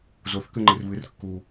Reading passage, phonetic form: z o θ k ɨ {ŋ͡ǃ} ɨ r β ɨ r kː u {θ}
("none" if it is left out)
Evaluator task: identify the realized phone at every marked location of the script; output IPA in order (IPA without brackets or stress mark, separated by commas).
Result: ŋ͡ǃ, none